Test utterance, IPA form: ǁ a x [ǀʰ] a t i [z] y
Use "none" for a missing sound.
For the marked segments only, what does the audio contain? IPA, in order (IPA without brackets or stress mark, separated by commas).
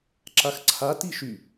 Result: ǀʰ, ʃ